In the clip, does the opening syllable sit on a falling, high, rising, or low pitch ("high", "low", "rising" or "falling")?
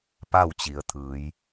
falling